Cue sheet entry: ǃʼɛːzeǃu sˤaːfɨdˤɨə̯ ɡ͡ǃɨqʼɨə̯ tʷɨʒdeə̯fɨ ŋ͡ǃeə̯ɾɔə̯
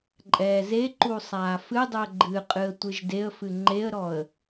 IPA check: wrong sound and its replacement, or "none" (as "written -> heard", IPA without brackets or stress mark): none